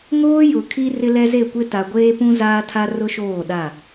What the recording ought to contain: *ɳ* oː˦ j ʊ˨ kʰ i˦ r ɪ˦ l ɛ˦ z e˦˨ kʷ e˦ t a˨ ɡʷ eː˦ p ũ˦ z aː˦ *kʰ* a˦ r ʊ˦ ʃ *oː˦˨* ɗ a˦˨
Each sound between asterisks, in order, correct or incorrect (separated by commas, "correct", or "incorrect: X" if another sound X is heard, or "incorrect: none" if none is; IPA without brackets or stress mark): incorrect: ŋ, incorrect: tʰ, correct